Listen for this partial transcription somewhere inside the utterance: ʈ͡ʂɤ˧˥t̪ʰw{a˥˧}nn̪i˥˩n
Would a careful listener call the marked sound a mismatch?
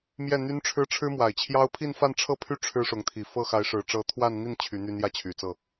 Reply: no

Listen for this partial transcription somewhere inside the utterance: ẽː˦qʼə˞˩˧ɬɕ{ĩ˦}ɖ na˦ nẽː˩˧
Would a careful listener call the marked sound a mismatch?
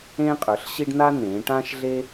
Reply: yes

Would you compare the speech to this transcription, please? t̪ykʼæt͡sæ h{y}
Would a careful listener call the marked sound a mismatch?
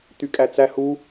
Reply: yes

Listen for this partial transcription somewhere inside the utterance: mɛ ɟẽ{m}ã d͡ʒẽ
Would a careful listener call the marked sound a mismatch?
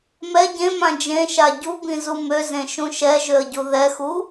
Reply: no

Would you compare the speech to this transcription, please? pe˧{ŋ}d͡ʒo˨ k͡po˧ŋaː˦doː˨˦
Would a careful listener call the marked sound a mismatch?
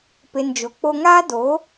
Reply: yes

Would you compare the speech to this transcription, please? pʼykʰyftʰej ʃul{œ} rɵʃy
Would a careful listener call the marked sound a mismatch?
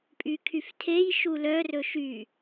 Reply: no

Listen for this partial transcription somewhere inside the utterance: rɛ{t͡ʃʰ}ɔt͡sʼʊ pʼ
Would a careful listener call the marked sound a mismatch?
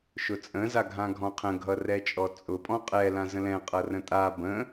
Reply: yes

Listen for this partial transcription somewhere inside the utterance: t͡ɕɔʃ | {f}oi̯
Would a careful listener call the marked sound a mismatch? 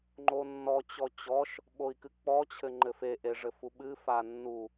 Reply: yes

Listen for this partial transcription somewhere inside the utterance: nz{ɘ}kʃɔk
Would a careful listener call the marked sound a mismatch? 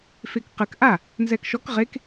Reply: yes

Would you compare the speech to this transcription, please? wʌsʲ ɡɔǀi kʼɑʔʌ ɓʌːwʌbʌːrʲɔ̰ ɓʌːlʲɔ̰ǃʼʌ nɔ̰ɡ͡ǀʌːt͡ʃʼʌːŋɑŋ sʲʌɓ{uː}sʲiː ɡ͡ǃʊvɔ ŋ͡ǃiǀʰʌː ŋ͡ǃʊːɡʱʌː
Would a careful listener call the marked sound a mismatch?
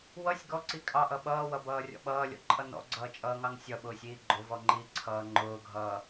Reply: yes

